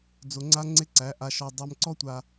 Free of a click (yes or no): no